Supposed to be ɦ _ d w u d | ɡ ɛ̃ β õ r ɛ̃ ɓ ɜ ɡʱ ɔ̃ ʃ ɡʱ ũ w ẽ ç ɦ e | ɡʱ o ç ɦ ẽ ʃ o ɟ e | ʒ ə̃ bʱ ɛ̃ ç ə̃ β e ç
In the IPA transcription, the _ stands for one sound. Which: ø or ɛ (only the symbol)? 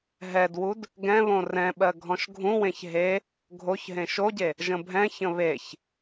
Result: ɛ